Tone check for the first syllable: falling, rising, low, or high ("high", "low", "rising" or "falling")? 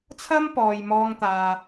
high